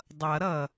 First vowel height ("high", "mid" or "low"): mid